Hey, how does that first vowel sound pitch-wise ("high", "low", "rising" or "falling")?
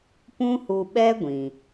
high